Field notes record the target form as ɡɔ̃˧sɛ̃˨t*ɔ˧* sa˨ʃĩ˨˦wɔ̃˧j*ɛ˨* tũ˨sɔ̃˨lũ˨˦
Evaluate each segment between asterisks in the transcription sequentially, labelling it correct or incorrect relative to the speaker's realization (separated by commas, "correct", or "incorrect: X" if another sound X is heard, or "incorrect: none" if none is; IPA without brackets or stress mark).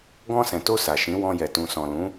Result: incorrect: o˧, correct